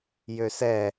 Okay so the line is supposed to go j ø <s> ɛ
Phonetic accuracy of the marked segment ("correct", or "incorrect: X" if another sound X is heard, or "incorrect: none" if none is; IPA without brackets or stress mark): correct